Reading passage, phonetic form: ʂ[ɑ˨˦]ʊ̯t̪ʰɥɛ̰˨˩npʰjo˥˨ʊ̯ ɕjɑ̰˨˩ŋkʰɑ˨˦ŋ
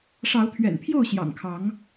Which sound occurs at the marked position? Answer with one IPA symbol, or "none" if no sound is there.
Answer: ɑ˨˦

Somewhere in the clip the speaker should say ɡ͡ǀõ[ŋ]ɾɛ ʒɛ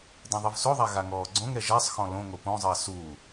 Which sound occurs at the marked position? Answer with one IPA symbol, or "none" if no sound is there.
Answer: ŋ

